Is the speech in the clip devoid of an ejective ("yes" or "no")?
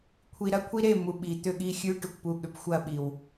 yes